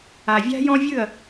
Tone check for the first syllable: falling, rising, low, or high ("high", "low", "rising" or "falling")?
low